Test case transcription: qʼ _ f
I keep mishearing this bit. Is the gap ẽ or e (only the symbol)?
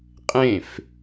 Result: ẽ